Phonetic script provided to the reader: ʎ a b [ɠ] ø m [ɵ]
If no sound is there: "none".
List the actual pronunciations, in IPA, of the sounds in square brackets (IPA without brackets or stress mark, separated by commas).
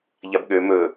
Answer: ɠ, ɵ